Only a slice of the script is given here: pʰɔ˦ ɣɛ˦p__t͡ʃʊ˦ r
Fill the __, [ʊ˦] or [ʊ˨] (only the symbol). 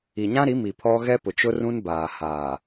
ʊ˨